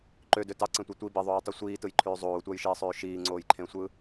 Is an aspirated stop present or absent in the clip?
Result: present